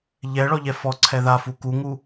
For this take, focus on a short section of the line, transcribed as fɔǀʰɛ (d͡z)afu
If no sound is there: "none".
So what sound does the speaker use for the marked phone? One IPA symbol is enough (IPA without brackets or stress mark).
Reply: ð